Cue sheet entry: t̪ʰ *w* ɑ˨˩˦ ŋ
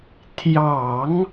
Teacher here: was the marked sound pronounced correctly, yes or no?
no